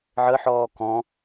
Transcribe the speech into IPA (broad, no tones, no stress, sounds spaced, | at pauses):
ʕ ə ħ ɔː k ɔ̃